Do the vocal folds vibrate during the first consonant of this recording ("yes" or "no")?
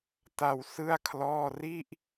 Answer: no